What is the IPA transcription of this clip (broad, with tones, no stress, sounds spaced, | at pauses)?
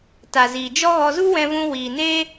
t a˨ z iː˨ d͡ʒ ɔ˦ ɣ ɔ˧ z u˦ w ɛ̃˧ v ũ˧ w iː˨ n eː˦